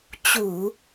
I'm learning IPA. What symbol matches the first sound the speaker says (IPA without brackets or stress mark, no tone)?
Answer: t͡ɕ